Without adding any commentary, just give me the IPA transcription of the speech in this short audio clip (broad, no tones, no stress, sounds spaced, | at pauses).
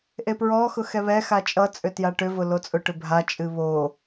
ʔ e p ɹ ɔ x ʊ x ɛ β ɛ x a t͡ʃʼ ʌ t͡sʼ ʏ t j a ʈ ʏ v ʊ l o t͡sʼ ʊ ʈ ʏ bʱ a t͡ʃʼ ɨ β o